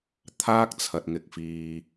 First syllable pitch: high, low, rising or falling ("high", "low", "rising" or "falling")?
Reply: high